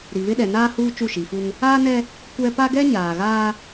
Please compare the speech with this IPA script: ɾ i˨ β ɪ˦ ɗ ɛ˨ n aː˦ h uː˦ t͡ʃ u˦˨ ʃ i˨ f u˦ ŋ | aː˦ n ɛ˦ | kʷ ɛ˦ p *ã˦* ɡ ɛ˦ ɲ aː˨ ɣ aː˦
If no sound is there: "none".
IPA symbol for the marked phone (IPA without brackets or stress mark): a˦